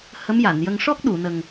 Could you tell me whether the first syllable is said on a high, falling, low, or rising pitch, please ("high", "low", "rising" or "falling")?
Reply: rising